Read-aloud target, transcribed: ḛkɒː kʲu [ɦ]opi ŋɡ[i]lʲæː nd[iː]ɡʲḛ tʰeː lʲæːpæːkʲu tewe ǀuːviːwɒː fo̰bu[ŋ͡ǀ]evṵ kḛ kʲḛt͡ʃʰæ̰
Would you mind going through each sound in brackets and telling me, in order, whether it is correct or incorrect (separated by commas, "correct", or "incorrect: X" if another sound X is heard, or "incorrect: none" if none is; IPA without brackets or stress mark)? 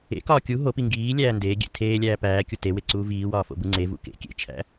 correct, incorrect: iː, incorrect: eː, correct